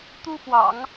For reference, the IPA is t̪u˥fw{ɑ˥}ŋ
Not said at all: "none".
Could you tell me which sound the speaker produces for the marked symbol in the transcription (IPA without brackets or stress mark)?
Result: ɑ̰˨˩˦